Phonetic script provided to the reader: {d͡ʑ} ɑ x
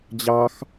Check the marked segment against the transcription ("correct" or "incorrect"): correct